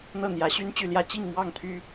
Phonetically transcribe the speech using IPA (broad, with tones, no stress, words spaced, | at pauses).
n̪ɤ˥˩ n̪jä˧˥ɕy˥nt͡ɕy˥˩ljä˥ t͡ɕi˥˧ŋmwɑ˥˩ŋt̪ʰy˥